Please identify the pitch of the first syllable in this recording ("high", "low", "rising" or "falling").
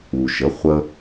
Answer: low